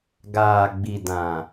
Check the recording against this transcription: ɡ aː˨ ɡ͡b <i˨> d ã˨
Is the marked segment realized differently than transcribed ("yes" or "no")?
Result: no